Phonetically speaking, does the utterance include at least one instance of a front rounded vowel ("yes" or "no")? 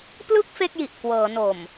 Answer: no